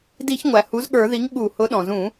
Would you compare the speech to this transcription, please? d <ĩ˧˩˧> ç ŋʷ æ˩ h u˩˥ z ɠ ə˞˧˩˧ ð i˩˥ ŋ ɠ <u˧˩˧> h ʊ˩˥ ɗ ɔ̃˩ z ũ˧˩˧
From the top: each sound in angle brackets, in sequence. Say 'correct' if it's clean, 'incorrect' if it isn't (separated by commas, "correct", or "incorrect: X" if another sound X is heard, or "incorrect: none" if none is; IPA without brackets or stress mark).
incorrect: i˧˩˧, correct